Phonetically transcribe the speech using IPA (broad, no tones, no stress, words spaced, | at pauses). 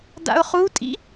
da̰ʊ̯χutʼḭ